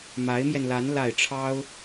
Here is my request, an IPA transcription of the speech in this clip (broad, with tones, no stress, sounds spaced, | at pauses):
m a˧˥ ɪ̯ m j ɛ˧ n l a˧˥ n l a˥˩ ɪ̯ ʈ͡ʂʰ ɑ˥ ʊ̯